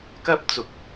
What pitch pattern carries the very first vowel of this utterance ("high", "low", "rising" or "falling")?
high